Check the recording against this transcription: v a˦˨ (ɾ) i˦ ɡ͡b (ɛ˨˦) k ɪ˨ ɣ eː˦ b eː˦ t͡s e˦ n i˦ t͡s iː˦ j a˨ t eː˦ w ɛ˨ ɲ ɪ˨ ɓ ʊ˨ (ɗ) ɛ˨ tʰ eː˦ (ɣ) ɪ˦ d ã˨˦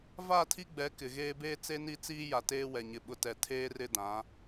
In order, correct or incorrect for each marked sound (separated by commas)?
incorrect, correct, incorrect, incorrect